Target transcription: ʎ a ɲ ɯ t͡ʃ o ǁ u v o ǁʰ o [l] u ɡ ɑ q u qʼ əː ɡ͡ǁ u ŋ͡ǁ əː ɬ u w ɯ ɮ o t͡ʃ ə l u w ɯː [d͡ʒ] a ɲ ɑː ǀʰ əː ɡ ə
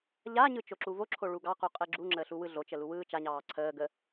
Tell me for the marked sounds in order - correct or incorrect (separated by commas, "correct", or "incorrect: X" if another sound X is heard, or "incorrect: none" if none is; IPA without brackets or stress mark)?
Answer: incorrect: ɭ, incorrect: t͡ʃ